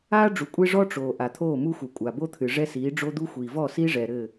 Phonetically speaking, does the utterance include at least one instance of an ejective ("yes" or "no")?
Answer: yes